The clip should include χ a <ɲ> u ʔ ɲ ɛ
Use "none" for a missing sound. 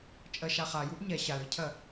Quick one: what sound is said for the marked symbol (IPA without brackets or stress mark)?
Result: j